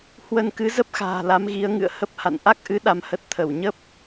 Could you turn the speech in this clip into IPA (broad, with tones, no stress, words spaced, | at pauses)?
hwə˧n kɨ˨˦ zə˦˥p̚xa̤ː˨˩ la˨˦mɣi˨˦ə̯ ŋɨ̰˧˨ə̯hə˦˥p̚ha̰˧˨n ʔa˦˥k̚ʔɨ˨˦ ɗa˧mhə˦˥t̚ t̪ʰə˧˩wɲə˦˥p̚